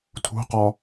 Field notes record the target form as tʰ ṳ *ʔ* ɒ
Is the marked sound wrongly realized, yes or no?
yes